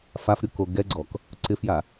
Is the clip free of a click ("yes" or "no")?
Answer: no